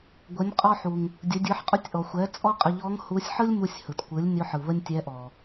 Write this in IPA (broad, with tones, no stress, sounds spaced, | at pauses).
ɡʷ ə˩˧ nʲ qʼ ɔ˧ ħ u˩ ŋ | dʲ ə˩˧ dʲ ɯ˩˧ ħ qʼ ʊ˧˥ tʲ ʔ ɔ˩ xʷ ɛ˩˧ t͡sʼ ɔ˥ qʼ ə˧ ʎ ɔ˧˥ ŋ h u˧˥ sʲ ħ ɯ˥ lʲ m u˧ sʲ h ɯ˩ t kʷ ɯ˩˧ lʲ nʲ ʊ˧˥ ħ ɯ˩ β ə˥ nʲ tʲ ɛ˧˥ ʔ ɔ˩